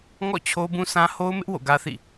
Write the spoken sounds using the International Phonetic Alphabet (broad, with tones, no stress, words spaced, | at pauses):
ŋɔ̰˦˨ t͡ɕʰo˦bũ˦sʰã˦ ho˦ʊ̯mɪ˦ʔ wo̰˦˨ɡä˦θḭ˦˨